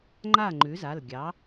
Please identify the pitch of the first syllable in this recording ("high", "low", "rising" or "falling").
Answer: falling